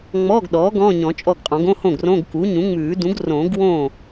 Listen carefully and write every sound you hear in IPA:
ŋ͡mɔː˧˥˧ɡɗɔː˩˥ ɡɔ̃ː˧˥˧ɲɔ̃˨˩˦t͡ʃʼɔ˥˩ɡqʼɔ̃˨˩˦ɡ õ˧˥˧hõ˥˩ɡ rõ˧˥˧ɡ ku˩˥ɲũ˩˥ŋ͡mʉː˨˩˦ dũ˩˥ɡrõː˨˩˦ɡwõː˥˩

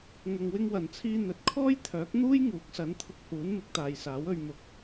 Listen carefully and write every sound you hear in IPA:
ŋɐ˨ŋwɪ˧ŋwɐ˨˩nt͡sʰiː˧ n̪ɵ˨˥t̚ kʰɔː˥jt̪ʰœː˨˥k̚ n̪uː˥j ŋuː˨˥k̚sɐ˨˥nt̪ʰʊ˧k̚huː˨˥n mɪ˨˥k̚t̪aː˨jsaː˨˥wɵ˧ɥ mʊ˧k̚

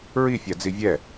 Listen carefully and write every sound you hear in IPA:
ɹifʲad͡zi vʲɛ

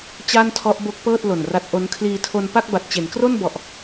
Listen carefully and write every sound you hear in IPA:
t͡ɕa˥˩ntʰɔ˦˥ʔbo˦˥k̚pɤː˥˩t̚ lo˨˩nra˦˥t̚ʔo˦˥n kʰliː˧tʰo˧n pa˥˩k̚ba˨˩t̚t͡ɕe˩˦n kro˥˩nbɔ˨˩ʔ

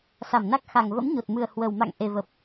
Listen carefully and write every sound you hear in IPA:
sa˧˩mna˦˥k̚ xa˨˩ŋ və̰˧˥mɲo˨˩t̚mɨ˨˩ə̯ hwə˨˩w ma̰˧˨ŋ ʔe˨˩və˨˩p̚

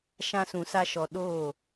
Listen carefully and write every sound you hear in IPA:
ʃã˧sũ˨sa˧ʃɔ˨ ɗoː˦˨

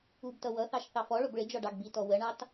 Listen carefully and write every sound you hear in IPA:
ubtʌ wʌθɑʃ θɑfɔɭʊb ɭɪd͡ʒɔ ɖɑɡbitɔ wəɳɑt

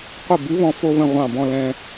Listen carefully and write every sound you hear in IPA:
qʷə˧˩ bɨ˨˥βɔ̃˧ fo˧βə̃˧˩ ʁʷɑ̃˧˩bɔ̃˧lɛ̃˧

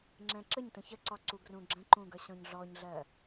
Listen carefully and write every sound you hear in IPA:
ŋ͡ǁɛ̃ǁəɲtə̃ çəǀɒ ǀuɡrũɡ͡ǁə̃ǃũ ɡʌɕɔ̃ɲɮɔɲɮɜ

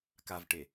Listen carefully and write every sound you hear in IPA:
kavʈe

